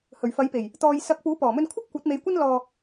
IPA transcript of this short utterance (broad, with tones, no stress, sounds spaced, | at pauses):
h ɵ˨˩ ɥ f ɐ˨˥ j p e˨˩ j | t̪ ɔː˨ j s ɐ˨˥ k̚ p uː˨˥ p ɔː˨˩ m ɵ˧ n kʷʰ ɐ˥ p̚ kʷ ɐ˨˥ t̚ m e˨˧ j kʷ ɐ˥ n l ɔː˧